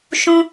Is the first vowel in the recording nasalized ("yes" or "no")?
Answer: yes